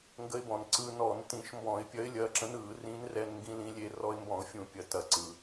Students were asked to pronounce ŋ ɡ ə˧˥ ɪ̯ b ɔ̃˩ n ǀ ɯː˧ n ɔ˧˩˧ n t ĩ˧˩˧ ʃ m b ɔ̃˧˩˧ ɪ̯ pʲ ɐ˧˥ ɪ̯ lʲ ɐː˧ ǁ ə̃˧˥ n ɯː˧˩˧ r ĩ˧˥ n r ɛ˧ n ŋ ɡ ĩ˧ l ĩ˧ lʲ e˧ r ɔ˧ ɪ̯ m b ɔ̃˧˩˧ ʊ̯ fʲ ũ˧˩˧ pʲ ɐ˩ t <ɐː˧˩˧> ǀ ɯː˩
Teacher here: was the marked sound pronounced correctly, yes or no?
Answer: no